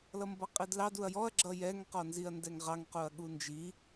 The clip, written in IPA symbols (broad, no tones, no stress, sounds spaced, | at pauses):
l ʌ m b ʌ qʼ i d l ɑ d u ɐ̯ j ɔ ɐ̯ ɡ͡ǁ ʌ j ɛ ŋ q ɔ n z i ɐ̯ n d ɛ ŋ ʁ ɑ ŋ q u ɐ̯ ɠ u n d͡ʒ i